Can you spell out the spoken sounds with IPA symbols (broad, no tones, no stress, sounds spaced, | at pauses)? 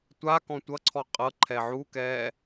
tʷ a k ɔ̃ tʷ ʌ ǀʰ ɔ qʼ ɤ ǃʰ ɛ ʕ u k ɛː